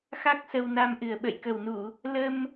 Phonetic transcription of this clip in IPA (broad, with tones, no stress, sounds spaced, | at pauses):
x a˦˥ k̚ s ə˧ w n a˧ m ʔ ɨ˨˩ ə̯ ɓ ə̰˧˨ j k ə˨˩ w n u˧˩˨ | l ə˧ m